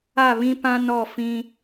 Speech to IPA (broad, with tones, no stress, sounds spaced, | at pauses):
a˦˨ β ĩ˦ p ã˦ n ɔ˦˨ f ĩ˦